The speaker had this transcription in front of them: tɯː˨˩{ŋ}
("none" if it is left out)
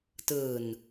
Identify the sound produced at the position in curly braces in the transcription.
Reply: n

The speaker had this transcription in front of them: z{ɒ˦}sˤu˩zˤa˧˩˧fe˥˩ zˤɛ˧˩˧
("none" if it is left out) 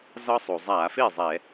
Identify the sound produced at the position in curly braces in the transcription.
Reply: ɒ˦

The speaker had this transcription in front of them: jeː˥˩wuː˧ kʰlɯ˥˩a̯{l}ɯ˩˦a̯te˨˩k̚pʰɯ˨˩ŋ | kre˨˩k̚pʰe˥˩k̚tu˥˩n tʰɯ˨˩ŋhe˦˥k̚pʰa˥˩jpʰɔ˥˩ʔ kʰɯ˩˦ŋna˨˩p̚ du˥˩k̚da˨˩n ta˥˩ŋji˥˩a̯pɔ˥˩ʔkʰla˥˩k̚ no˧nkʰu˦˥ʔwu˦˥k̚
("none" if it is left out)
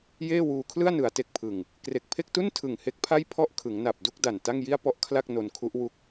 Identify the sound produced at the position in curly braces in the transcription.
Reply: n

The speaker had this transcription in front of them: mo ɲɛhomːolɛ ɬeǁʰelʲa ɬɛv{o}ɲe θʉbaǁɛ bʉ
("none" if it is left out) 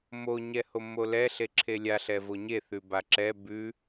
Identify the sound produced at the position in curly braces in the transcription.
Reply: o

